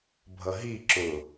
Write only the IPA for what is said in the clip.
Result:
bʱ ʌ ɦ i ǁ ʊ

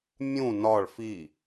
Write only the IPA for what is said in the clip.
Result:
mʲ ũ n ɒ ɭ f i

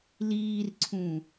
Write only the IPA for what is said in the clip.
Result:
l iː r ǀʰ ũ

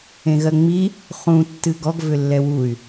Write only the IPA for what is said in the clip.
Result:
ẽ ɣ ɜ ŋ͡m i | χ ũ tː ɨ ɡ ɔ ɡ v ʏ lː ɛ w u y̯

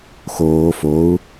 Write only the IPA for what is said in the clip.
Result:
x oː f o u̯

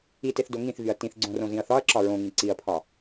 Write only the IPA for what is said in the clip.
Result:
i t e θ d o ŋ ĩ θ v y ɐ̯ t ĩ θ ɡ͡ǀ õ r õ z ĩ ɐ̯ θ ɒ ɐ̯ ǁ ɒ ɹ õ ŋ ĩ ǀ i ɐ̯ pʰ ɒ

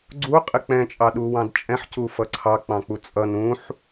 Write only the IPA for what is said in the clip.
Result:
ɡ͡ǀ u qʼ ɪ k͡p ɛ̃ t͡ʃʼ ɑ ɗ u w ɑ̃ d t͡ʃʼ ɛ̃ ħ c u f ʌ ǀʰ ɑ k͡p ɑ̃ k͡p u t͡sʼ ʌ n ũ ħ

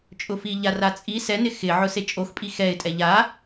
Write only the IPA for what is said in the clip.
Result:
t͡ʃʼ ʊ f i ʎ a r a t͡sʼ i s ɛ n ɪ x ɪ ʕ ʊ s e t͡ʃʼ o x pʼ i x ɛ ɪ̯ tʼ ɛ ʎ a

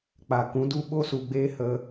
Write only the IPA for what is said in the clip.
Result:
k͡p a˨ k ũ˨˦ d u˦ ɓ o˦ s u˨ ɡ͡b eː˦ h ə˧

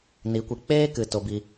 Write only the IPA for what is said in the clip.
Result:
n i˨˦ kʷ i˨ k͡p eː˦ k ɨ˨ t o˧ b i˧

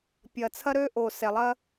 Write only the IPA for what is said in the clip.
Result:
pʲ ɐ˨ t͡sʰ ɐ˦ ɾ øː˦ ʔ o˨ s ɛ˨ lˠ ɐ˦

